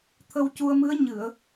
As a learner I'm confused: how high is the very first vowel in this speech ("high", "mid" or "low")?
mid